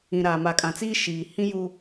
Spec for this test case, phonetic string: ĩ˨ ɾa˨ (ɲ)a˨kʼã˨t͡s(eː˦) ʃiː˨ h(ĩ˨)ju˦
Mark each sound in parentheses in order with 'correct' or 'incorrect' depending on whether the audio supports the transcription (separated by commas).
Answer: incorrect, incorrect, incorrect